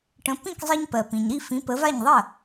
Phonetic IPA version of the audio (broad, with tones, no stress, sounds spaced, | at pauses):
ʈ ə̃˩˥ p ĩ˥˩ k zˤ i˧ ɲ p ɜ˩ p ĩ˩ ɲ ɾ i˥˩ f ĩ˩˥ p ə˩˥ v a˥˩ ɲ ðˤ ɜ˥˩